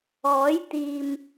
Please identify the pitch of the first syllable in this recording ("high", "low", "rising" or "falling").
rising